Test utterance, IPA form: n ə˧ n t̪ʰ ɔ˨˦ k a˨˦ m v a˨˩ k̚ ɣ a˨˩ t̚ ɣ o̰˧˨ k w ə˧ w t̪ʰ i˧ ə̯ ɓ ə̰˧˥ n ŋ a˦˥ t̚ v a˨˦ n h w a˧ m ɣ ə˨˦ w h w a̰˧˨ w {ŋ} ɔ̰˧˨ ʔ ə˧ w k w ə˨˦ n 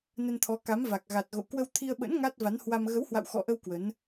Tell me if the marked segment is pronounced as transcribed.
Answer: no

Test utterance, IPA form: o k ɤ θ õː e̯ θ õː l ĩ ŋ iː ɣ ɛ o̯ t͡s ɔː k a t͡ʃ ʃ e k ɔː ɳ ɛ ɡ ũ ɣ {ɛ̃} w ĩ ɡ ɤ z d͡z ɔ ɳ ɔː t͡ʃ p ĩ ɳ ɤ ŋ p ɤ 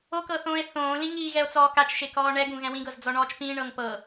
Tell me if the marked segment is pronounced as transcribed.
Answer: yes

